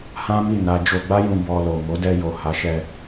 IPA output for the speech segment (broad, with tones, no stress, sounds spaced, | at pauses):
h ã˦ m i˦˨ n a˧ d͡ʒ o˧ ɡ͡b a˦ j ũ˧ b ɔ˧ l o˨ m o˨˦ d ɛ˧ j o˨ h a˨˦ ʃ ɛ˧